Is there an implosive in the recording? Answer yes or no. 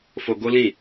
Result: no